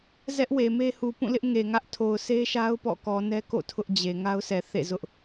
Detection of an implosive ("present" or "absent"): absent